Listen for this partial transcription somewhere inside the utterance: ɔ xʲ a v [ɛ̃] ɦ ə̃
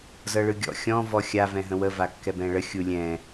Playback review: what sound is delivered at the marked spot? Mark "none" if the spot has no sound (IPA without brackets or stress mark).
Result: ɛ̃